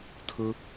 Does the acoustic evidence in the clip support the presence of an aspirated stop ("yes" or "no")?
yes